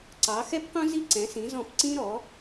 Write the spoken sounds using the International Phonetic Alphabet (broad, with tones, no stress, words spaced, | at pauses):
ǀɑ˨˥ xɛ˥pqũ˥ zi˥ǀɛ̃˨˥sĩ˨˥zɔ̃˦˨p ǀĩ˥ɾɔ˨˥